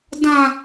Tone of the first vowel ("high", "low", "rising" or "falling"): high